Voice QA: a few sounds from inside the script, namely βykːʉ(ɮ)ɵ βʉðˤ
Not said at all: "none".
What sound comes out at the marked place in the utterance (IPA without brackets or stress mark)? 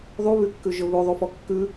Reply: ʒ